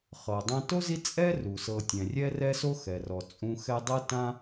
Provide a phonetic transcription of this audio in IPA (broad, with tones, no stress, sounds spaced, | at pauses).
χ ɤ˩ dˤ ã˦ t o˥ z i˦ t͡sʼ ɛ˥ r u˩ s ɤ˨ tʲ ɛ̃˩ rʲ ɛ˥ r ɛ˦ s o˦ x ɛ˩ r ɔ˩ t͡sʼ ũ˦ x ɛ˥ dˤ ɤ˥ t ã˥